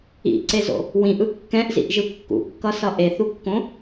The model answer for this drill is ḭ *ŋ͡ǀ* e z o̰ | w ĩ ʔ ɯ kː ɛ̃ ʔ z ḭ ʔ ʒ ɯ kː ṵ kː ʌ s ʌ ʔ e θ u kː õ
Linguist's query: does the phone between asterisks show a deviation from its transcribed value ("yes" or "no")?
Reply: yes